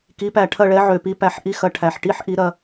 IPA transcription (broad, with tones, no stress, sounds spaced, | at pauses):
k i˩˥ p æ˨˩ ʈʰ ɐ˦˨ ɭ ɛ˩˥ ʕ ø˨˩ p i˩˥ p æ˨˩ ħ ʔ i˦˨ x ɐ˦˨ ʈʰ æ˨˩ ħ ʈ i˦˥ ħ ʔ i˩˥ ɾ ɐ˦˨